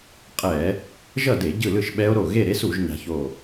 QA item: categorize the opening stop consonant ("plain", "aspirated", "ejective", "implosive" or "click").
ejective